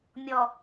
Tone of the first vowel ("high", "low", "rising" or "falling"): low